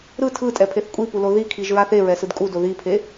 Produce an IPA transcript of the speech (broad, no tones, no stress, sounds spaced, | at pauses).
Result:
ɾ ɯ tʰ ɯ tʼ ɛ pʰ e θ kʷʼ i p u l o ð i kʰ i ʒ ɹ a θ e ɹ ɛ s ɯ d kʼ u d o ð i pʰ e